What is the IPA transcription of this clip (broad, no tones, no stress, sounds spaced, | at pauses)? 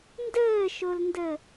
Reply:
n d əː ʃ o l n d ə